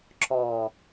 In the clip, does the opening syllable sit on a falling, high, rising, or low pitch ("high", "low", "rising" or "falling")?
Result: low